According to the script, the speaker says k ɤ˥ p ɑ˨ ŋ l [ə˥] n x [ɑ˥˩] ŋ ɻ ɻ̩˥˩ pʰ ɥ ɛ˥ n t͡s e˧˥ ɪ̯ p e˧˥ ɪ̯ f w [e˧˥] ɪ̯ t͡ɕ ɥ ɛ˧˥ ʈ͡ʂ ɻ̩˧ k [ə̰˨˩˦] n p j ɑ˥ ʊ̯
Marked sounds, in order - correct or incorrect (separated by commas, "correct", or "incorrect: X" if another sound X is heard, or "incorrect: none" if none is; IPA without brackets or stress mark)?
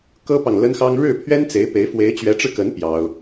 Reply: correct, incorrect: ɑ˥, correct, incorrect: ə˧˥